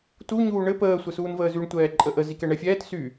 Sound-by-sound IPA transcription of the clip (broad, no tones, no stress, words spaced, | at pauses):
tu ɲuːɳɘ pəː sʷɘsuːnvəːzyɳ tʷɛːǃʼəʔə zikɛɳɛfʲɛːt sy